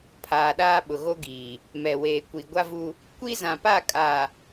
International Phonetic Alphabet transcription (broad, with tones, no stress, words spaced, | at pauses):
pʰaː˨ɗaː˦ɓʊ˨ ɣo˦ɡiː˨ | mɛ˨weː˨ kʷi˨ɡʷa˦vu˦ | kʷi˦zã˨pa˦˨ kʼaː˨